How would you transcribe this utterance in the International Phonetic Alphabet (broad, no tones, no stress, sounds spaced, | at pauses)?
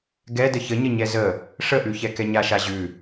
ɡ ɛ d ə ç ə ɲ ə ɲ ɛ z ə | ʂ ə ʔ ʉ ç ɛ k ɛ ɲ a ʃ a ʑ ʉ